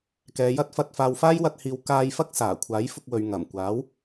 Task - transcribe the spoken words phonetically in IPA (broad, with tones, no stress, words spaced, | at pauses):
kɛː˨˧jɐ˥t̚fɐ˧t̚ faː˨wfaː˥jwɐ˧t̚hiː˨w kaː˧j fɐ˥k̚saː˨˩ kʷʰaː˨˥jfʊ˧k̚wɵ˨ɥ ŋɐ˨˩mkʷaː˨˥w